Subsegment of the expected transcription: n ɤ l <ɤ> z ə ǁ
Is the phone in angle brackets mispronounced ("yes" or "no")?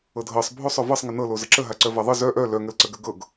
yes